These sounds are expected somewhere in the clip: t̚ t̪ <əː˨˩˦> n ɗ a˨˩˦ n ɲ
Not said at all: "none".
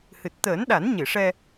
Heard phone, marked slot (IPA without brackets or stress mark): əː˨˩˦